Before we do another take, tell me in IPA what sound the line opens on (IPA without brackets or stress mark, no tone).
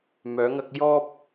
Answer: m